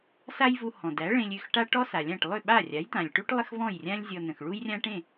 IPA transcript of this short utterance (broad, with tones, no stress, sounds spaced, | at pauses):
s a˥ j v u˧ h ɔ̃˩ d æ˩˥ ɭ ẽ˧ lʲ ʏ˥˩ x ʈ a˥ ʈ ɔ˥ s a˩ lʲ ã˥˩ ʈ lˠ ʏ˥˩ ɓ a˥˩ rʲ a˩˥ j t̪ ã˩ lʲ ʈ u˥ ʈ lˠ ə˥ x v ɔ̃˥˩ j rʲ ã˥ lʲ zʲ ɔ˧ n ə̃˩ x ɭ u˥ j rʲ ã˥ ʈ ẽ˥˩